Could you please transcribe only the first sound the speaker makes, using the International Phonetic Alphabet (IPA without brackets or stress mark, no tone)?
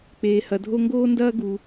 k͡p